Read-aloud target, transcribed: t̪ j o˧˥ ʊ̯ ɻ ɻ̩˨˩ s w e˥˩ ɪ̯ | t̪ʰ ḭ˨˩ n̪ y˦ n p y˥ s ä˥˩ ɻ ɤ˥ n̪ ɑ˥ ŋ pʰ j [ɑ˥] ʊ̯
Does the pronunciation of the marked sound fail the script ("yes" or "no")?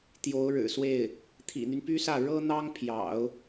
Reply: yes